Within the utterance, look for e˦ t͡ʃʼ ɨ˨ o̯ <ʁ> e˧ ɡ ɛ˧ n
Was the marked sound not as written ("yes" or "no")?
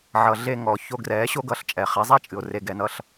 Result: yes